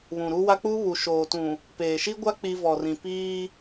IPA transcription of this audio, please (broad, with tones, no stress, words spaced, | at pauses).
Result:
βũ˨ɾu˦wa˦ k͡pu˦βu˨ ʃoː˨tũ˨ | peː˨ʃi˦ɡʷa˦ k͡pi˦ vɔ˨rĩ˨piː˦